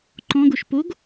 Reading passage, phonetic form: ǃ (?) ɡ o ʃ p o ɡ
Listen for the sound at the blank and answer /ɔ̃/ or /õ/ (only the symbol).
ɔ̃